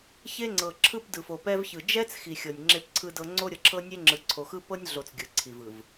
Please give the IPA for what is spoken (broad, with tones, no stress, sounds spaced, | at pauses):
ç e˦ ŋ͡ǀ ɤ˨ ǁʰ ɯ˦ p d ɯ˨ f o˨ p ɛ˦ v ç ɯ˨ d͡ʒ ɛ˦ t͡s x i˨ xʲ ɤ˨ nʲ ŋ͡ǁ e˦ p ǀʰ ɯ˦ d ɤ˦ ŋ͡ǀ o˦ ɾʲ ɤ˨ ǁʰ ɤ˦ nʲ e˦ ŋ͡ǁ ɯ˨ ǀʰ o˨ x ɯ˦ p ɤ˦ nʲ ɮ o˨ t͡s ɡʲ ɯ˨ ǀʰ i˨ v ɯ˨ v